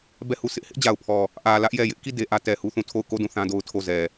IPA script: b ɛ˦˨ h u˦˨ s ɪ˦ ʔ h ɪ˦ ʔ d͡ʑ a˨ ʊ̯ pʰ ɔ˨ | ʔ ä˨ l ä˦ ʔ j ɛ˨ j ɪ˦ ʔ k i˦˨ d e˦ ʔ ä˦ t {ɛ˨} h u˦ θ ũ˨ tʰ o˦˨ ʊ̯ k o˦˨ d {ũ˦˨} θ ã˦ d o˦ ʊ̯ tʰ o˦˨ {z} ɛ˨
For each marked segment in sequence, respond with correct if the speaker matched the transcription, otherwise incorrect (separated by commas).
correct, correct, correct